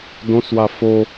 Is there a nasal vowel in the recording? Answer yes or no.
yes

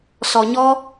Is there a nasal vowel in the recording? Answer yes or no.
no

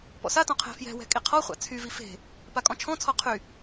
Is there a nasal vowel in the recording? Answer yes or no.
yes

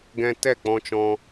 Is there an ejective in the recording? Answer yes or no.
no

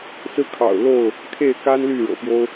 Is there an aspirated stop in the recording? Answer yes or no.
yes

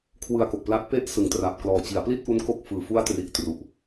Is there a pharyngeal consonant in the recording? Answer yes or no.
no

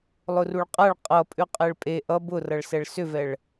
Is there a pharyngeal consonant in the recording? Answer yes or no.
no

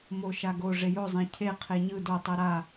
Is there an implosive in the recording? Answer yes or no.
no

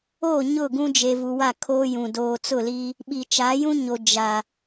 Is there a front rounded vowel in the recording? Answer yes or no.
no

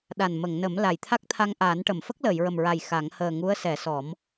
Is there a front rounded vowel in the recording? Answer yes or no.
no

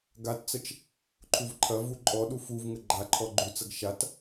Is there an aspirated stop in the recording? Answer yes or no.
yes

